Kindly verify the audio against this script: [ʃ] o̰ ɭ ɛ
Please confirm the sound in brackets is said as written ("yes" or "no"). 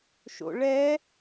yes